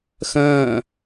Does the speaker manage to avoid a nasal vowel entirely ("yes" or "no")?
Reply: no